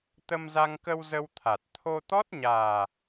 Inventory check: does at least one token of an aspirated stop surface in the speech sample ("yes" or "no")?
yes